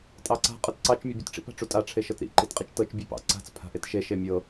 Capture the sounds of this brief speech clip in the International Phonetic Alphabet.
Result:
tʼ ɑ ǀ a̤ qʼ ɤ t ǀ ɑ t͡ʃ mʲ ɤ bʲ u t ʈ͡ʂ ḭ p a̤ ʈ͡ʂ u tʼ a ʈ͡ʂʰ e ʃ ɤ t ɾ ḭ ǃ i t qʼ i t͡ʃ t ɤ t͡ʃ bʲ e p ɑ̰ ǀ a̤ t͡s pʰ a̤ ʔ e t ʃ e ʃ e mʲ ɤ

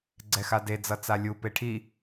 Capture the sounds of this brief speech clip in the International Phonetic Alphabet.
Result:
ɡ͡ǀ ɛ x a d e d͡z ʌ t͡s a lʲ u p e ʈʰ i

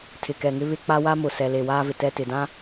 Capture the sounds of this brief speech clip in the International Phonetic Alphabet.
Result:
tʰ ɪ˨ k ɛ˨ ŋ ɪ˦ β ɪ˦ k͡p a˦ w a˦ m ʊ˨ s ɛ˨ l e˨ w aː˦ v ɪ˨ t ɛ˦ t ɪ˨ d ã˦

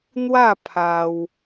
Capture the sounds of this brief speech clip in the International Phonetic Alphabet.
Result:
n̪ w a˥˧ pʰ a˧ w

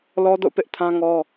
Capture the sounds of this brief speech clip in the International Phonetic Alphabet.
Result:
l ɔ˦ d o̰˦˨ p ɪ˦ ʔ tʰ ã˦ ŋ ɔ˦

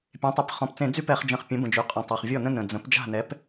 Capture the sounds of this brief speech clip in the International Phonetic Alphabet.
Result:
pʲ ẽ˩˥ tˤ e˩˥ p χ ɔ̃˨˩ p t͡s ẽ˧˩˧ d͡z y˦ p ɛ˧˩˧ χ d͡ʒ ə̃˨˩ χ pʲ ə̃˩˥ b ə̃˨˩ d͡ʒ y˩˥ qʼ ɔ̃˨˩ tˤ a˨˩ χ vʲ ɔ˥˩ n ə̃˦ n ə̃˨˩ d͡z ə̃˩˥ p d͡ʒ a̤˥˩ n ɛ˩˥ p

